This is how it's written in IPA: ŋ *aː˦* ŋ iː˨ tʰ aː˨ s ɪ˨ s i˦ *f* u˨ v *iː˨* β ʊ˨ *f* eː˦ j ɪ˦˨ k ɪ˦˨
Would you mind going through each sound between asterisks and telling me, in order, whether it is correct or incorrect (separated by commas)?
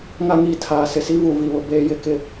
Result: incorrect, incorrect, incorrect, incorrect